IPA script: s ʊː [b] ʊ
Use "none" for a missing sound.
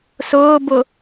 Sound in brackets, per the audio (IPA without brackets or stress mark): b